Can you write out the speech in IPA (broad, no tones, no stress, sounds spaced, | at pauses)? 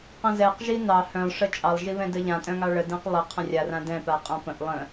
q ə̃ z ɛ q ʒ i n ɑ h œ̃ lˠ ʂ ə t͡ʃʼ ɑ lˠ ʒ i β ɛ̃ d ə ʎ ã tʼ œ̃ ŋ ɑ ɭ ə d ɛ̃ q lˠ ə qʰ ə̃ rʲ a r ã d ɛ̃ p a qʼ ã p ə̃ ʔ lˠ ə̃